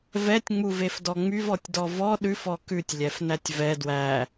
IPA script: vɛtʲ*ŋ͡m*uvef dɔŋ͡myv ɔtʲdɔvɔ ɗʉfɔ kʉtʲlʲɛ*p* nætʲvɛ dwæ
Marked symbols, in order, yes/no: yes, no

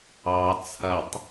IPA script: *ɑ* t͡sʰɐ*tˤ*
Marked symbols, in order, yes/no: yes, yes

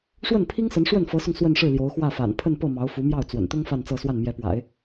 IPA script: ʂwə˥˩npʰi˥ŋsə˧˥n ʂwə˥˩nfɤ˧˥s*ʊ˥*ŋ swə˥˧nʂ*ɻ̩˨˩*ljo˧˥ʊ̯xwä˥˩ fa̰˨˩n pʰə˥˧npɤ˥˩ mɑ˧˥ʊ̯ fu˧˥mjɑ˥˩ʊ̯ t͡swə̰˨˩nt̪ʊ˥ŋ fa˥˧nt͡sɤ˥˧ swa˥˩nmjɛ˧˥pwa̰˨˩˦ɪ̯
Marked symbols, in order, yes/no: no, no

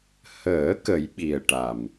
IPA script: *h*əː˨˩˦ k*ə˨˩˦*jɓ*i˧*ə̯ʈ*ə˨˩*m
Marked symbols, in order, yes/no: yes, yes, no, no

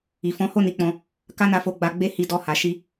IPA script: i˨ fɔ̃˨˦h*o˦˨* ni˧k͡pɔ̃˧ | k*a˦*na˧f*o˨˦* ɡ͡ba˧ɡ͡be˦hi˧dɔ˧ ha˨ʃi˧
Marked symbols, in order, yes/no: yes, yes, no

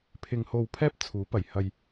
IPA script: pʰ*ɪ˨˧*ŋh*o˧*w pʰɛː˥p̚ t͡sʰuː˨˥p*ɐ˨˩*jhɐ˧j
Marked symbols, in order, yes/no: no, yes, yes

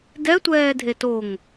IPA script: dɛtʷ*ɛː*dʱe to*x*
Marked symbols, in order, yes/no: yes, no

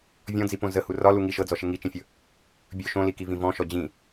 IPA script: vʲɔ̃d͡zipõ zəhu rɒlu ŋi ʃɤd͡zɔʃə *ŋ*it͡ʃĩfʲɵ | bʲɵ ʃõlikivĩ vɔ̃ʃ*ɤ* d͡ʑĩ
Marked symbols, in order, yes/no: yes, no

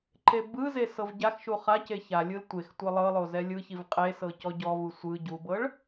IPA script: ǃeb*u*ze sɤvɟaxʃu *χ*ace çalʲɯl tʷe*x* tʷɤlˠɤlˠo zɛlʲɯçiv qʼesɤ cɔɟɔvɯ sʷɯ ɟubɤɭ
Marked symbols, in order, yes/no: no, yes, yes

